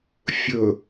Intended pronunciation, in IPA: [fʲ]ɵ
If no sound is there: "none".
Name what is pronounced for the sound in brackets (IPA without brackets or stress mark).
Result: fʲ